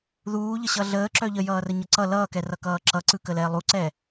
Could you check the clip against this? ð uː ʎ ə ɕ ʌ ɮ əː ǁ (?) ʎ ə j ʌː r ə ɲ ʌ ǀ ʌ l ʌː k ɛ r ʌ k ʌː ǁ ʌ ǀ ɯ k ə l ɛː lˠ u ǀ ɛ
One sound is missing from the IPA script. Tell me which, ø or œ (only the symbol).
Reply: œ